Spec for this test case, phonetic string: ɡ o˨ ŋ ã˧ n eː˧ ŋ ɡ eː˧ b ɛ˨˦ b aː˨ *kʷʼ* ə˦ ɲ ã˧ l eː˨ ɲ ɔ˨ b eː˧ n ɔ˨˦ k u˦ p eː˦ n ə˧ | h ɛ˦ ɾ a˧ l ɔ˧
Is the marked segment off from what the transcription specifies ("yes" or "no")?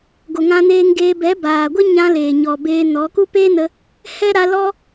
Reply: yes